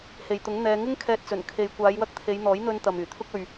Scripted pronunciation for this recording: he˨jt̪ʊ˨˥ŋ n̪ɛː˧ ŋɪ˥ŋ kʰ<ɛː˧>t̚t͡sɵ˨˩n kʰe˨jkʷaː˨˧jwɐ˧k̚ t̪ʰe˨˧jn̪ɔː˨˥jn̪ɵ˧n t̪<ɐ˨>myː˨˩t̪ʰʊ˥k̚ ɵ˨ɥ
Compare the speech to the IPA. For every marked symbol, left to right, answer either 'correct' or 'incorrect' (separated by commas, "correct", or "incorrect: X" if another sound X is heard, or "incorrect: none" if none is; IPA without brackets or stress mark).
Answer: correct, correct